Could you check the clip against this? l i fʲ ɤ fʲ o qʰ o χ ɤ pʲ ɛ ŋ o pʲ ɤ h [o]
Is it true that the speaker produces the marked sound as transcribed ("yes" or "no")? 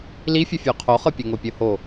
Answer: yes